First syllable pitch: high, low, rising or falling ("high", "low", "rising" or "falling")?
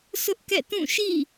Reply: high